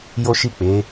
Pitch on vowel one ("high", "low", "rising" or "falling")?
high